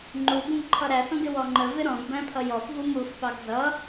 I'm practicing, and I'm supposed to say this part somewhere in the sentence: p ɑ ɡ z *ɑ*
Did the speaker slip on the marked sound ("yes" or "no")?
yes